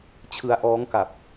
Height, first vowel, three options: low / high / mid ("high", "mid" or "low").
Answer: high